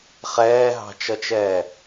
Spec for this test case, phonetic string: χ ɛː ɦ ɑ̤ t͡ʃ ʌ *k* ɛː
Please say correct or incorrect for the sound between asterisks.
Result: incorrect